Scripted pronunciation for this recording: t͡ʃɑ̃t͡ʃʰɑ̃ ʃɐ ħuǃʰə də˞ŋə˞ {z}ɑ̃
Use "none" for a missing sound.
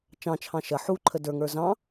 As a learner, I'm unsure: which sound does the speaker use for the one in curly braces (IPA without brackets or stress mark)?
z